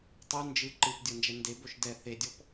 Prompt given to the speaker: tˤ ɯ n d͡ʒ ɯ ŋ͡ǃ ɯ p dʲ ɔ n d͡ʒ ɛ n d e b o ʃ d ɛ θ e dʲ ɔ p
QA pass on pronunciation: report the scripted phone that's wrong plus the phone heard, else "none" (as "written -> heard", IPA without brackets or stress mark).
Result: ŋ͡ǃ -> ǃ